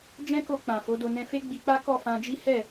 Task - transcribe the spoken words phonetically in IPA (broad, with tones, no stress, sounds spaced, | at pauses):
d͡ʒ ɛ̃˦ k o˧ k͡p ã˨ f o˨˦ d o˧ n ɛ̃˧ f e˦ ɡ͡b i˧ k͡p a˦ k ɔ˦˨ f ã˧ d͡ʒ i˦ h ɛ˦˨